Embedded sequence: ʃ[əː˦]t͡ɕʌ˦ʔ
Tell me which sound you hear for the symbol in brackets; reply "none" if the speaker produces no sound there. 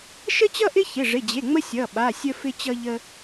ə˦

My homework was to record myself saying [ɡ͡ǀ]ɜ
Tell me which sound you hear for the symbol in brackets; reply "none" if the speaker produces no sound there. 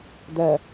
d̪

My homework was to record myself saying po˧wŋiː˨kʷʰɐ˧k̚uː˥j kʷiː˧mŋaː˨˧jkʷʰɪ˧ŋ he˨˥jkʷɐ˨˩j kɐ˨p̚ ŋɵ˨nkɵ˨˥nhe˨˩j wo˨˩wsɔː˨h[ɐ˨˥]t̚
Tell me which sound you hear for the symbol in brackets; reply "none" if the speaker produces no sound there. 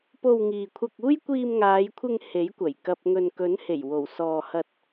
ɐ˧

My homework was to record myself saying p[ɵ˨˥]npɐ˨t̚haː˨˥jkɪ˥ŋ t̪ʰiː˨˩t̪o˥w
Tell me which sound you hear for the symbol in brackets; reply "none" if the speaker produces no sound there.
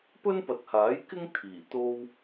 ɵ˥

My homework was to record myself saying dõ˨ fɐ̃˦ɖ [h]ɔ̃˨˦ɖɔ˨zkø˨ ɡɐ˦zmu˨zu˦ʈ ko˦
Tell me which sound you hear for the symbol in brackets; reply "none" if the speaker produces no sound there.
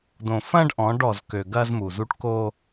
ʔ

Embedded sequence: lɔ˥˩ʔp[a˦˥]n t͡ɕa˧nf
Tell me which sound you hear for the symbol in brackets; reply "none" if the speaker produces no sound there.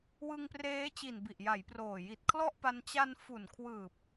a˧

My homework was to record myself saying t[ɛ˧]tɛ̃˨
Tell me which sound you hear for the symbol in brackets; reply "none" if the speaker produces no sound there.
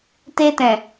e˧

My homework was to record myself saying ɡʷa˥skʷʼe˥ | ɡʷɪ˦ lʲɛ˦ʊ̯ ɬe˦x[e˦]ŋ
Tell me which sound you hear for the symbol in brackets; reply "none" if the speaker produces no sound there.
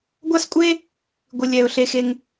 e˦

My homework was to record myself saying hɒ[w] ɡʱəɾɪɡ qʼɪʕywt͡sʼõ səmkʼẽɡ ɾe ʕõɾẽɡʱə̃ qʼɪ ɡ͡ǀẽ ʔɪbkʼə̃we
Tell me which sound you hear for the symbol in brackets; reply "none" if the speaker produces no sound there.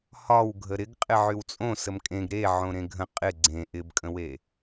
w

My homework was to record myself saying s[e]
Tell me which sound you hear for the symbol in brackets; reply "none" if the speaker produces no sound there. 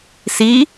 i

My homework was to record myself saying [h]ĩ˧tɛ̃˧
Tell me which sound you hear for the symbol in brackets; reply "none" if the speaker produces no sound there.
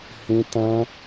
h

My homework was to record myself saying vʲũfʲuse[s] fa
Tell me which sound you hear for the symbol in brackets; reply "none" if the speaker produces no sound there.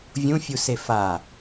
none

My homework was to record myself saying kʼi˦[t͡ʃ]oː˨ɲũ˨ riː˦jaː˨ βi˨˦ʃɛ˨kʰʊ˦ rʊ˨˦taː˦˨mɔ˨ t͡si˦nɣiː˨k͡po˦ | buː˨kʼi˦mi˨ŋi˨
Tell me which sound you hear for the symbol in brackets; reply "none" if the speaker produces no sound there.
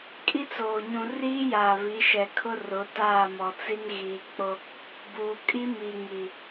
t͡s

